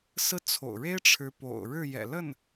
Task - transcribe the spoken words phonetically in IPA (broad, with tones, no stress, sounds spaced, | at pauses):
s ɹ̩˥ t͡sʰ o̰˨˩ ʊ̯ ɻ e˥ ɪ̯ ʈ͡ʂʰ ɻ̩˧˥ p o̰˨˩ ʊ̯ ɻ ɻ̩˥˩ j ɛ̰˨˩ l ə˥˩ n